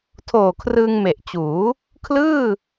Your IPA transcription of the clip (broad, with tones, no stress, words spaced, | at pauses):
tʰoː˨˩kʰrɯː˧ŋme˨˩ʔt͡ɕuː˩˦ | kʰlɯː˥˩